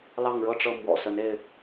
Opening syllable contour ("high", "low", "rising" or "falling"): falling